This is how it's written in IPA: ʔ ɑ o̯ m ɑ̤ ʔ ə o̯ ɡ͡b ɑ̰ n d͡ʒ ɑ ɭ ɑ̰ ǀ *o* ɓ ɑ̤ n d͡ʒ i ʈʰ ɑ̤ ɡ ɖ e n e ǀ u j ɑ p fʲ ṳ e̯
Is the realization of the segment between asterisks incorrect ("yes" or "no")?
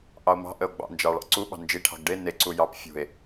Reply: yes